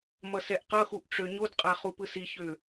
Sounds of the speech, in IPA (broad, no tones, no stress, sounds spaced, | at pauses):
m ʌ s ɛ ʔ q ʌ x u ʔ ʈ͡ʂ ø ɲ o d qʼ a χ u p ɯ s i ç ø